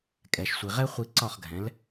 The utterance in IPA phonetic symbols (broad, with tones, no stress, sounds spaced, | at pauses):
kʼ ɛ˩ ʃ sʷ i˩ ʁ ɛ˥ χʷ i˧ ǀ ɒ˥˩ χ ɡʱ ɛ̃˩˥ l